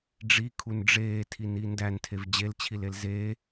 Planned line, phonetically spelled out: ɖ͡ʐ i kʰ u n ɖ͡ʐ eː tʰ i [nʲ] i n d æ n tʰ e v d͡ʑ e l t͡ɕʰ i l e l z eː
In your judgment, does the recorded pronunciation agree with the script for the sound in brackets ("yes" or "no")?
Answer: no